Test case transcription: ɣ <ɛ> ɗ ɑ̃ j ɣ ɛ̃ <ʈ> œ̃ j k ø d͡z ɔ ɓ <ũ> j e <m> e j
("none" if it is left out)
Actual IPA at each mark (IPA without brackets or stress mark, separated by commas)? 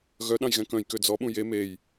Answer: œ, k, ũ, m